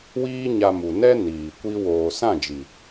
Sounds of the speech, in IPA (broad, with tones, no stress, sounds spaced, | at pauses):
w iː˦ ɲ a˧ m u˨ n ɛ˦ n iː˨ kʷ i˦ w oː˨ s ã˦˨ d͡ʒ i˨